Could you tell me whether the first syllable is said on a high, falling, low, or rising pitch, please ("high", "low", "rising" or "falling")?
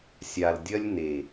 low